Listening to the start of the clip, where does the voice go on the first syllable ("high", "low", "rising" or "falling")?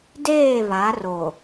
falling